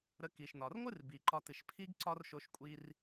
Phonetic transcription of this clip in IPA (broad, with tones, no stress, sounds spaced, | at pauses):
ɾ ə˧ k i˩ ʃ n ɒ˩ r ŋʷ ɨ˥ r b i˩ ǃ ɒ˧ t ɨ˩ ʃ pʰ i˥ ɡ ǀ ɒ˥ r ʃ o˧ ʃ kʷʼ i˧ r